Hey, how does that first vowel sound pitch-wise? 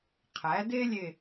rising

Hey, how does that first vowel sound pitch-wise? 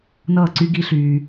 falling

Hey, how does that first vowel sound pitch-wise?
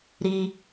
low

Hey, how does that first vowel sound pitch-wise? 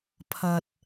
low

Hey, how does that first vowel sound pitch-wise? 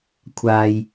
low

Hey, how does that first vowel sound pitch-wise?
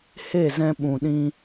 falling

